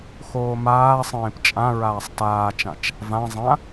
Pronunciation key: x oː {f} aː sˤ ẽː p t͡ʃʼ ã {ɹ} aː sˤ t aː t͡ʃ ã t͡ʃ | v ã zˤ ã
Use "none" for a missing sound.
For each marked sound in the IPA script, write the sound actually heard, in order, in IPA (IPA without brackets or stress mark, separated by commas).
m, ɹ